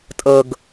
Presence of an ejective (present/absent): present